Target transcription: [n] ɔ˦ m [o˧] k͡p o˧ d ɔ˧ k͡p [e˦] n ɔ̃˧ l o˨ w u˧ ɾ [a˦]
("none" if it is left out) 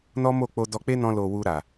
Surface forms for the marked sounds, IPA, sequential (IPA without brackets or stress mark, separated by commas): n, o˦˨, e˦, a˨